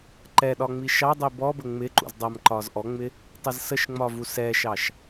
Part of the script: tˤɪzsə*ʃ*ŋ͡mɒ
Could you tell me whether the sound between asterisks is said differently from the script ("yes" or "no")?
no